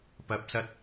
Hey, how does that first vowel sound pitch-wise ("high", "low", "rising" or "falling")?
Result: rising